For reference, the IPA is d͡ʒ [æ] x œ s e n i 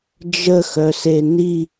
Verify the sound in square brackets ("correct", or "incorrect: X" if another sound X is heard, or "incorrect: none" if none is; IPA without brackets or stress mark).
incorrect: ə